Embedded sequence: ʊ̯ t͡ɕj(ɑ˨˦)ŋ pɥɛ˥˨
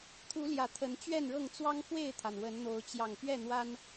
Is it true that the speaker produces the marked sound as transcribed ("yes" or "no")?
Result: no